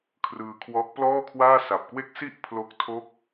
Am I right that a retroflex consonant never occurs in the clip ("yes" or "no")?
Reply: yes